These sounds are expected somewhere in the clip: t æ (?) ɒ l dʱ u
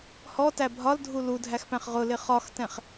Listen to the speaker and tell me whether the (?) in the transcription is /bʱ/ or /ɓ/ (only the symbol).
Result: bʱ